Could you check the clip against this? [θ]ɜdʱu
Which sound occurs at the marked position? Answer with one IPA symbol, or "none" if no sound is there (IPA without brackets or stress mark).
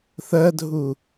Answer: θ